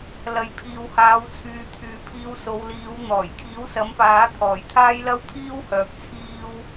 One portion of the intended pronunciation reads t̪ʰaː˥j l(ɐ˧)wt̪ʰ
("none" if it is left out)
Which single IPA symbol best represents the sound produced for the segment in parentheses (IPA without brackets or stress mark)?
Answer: ɐ˥